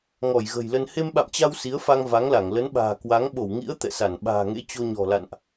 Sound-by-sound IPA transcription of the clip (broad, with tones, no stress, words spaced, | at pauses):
ŋɔ˧˩jɣə̤˨˩jlə˧n he˧mɓa̰˧˨mt͡ɕa˧w si˨˦ə̯fa˧ŋ va˨˦ŋla˧˩ŋ lə˨˦nɓa̤ː˨˩ kwa˨˦ŋ ɓo˧˩wŋḭ˧˥ə̯ t̪ɛ̰˧˨sa˧˩n ɓa̤ː˨˩ŋḛ˧˥ t͡ɕo˧ɲɔ̤˨˩ la̰˧˨nʔ